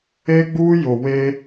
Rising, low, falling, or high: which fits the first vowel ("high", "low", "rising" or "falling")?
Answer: high